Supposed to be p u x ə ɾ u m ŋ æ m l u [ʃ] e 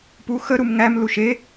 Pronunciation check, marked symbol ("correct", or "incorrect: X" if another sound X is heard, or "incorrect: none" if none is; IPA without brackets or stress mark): correct